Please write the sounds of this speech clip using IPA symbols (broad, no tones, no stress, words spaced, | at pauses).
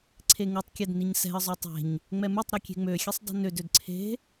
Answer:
ǀʰeŋutˤkʲɛd niɲsɛ̤ə̯zˤø tˤe̤ɲ | ŋ͡mɛmutˤɾø kʲe̤ŋ͡møxʲesˤ dˤe̤nødød ǀʰe̤